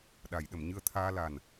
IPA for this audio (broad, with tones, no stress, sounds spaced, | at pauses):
ɗ a˨˩˨ j ɗ ə˨˩˨ m ɲ ɨ˧ ə̯ t̪ʰ aː˧ l a˨˩ n